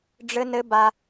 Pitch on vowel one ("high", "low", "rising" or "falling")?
high